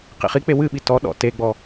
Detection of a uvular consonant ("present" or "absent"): present